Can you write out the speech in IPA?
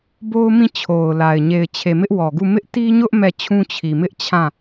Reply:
bo˦ʊ̯mĩ˦˨t͡ɕʰo˨ʊ̯la˨ɪ̯ ɲe˨ɪ̯t͡ɕʰe˨ mɪ˦ʔwɔ˨ɡu˦˨ mɪ˦ʔti˦ɲʊ˦ʔ mɛ˦˨t͡ɕʰũ˦ t͡ɕʰi˨ mɪ˦ʔ t͡ɕʰã˦˨

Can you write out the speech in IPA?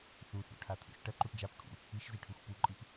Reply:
θuθṵʈʰat̪ʰṵʃ ʈɐǃuʈ d͡ʒap kʰṵ | iʃziʈʰuxʷ puǃʼip

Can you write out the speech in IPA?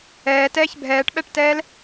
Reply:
ɛːtɛːç bʱɛːʈɓɛʈtɛːl

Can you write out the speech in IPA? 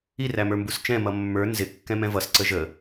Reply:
iræmə˞ mbust͡ʃɛ̃ mʌmːə˞ nzɪ kːɛ̃mɛ̃vʌs ǀəʒə

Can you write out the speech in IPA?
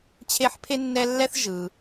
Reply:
t͡ɕʰe˦ħpʰe˥nːɛ˦lːɛ˥θ ʒɯ˨

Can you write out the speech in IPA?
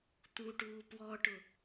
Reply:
t̪uʈuː pwɔʈʊ

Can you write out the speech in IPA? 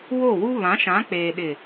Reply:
wo˦˨wu˦ βã˨˦ʃã˨˦k͡peː˨ ɗɪ˨

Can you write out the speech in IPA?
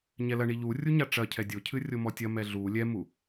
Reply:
ɲɛlɐ ɳiʎu rʲuɲaʈ͡ʂɐ cʰɛdʲocʰɨ rʲomɔtʲɐmɛ ɮu lʲɛmu

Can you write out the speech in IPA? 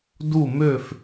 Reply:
du˥˧mø˥˧f

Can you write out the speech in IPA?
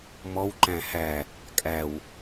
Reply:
mɔwǃæ̃ hæ | kʼæw

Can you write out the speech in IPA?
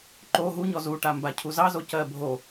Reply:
ǃo ɦuɲɔ zuʈamba cʰuzɑzo cɜbʱo

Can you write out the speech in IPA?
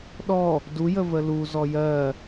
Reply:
ɗɔ | dujə vəlu zɔjɜ

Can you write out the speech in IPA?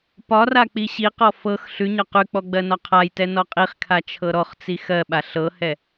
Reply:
pɒra k͡piɕiqɔ fɤx ɬʉɲɒ qʉk͡pɔ ɡ͡bɜnɒqʰajtɛ nɔqʼiχkʰa t͡ʃʰɤɾɔχt͡si xɜɓa ɬɤhɛ

